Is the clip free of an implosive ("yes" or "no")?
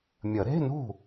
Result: yes